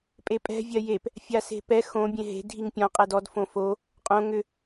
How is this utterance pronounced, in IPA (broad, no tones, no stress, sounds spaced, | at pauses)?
pʼ e pʼ ɛ̤ vʲ ɜ j e p | fʲ a s e̤ p ɛ x õ bʲ ẽ ɦ e̤ dʱ i ŋ pʲ ɔ̃ qʼ ɛ d ɔ d f õ f o | qʼ õ ŋ ʏ